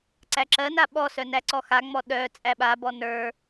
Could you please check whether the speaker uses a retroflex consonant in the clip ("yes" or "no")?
no